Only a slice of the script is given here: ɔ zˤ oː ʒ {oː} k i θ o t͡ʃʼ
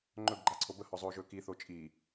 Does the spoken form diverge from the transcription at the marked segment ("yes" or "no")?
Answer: yes